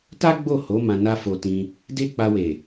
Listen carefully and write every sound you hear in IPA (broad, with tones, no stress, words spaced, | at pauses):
ta˦ɡ͡bo˦˨ho˨˦ mã˧na˦fo˧tĩ˧ | de˦k͡pa˧we˨